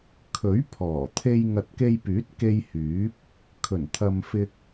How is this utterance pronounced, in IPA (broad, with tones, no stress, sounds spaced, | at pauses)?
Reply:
kʰ ɵ˨˥ ɥ pʰ ɔː˨˩ t̪ʰ e˧ j ŋ ɐ˨ t̚ k e˧ j p yː˨˥ t̚ k e˧ j h yː˨˥ p̚ | kʰ ɵ˨˩ n t̪ʰ ɐ˨ m f ɪ˧ k̚